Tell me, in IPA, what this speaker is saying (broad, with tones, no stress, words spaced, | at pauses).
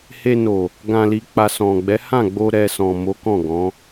he˧no˨ | ɡã˨li˨k͡pa˨ sɔ̃˨ɡ͡bɛ˨˦hã˦˨ ɡ͡bo˧ ɾɛ˨ sɔ̃˨mo˨˦ kɔ̃˦˨ɡɔ̃˨˦